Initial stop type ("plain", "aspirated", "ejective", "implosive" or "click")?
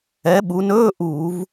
implosive